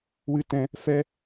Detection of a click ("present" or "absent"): absent